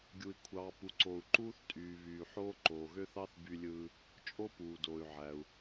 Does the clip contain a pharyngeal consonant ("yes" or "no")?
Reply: yes